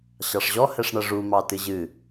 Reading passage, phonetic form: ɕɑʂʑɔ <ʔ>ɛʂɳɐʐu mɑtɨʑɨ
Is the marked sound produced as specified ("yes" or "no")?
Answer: no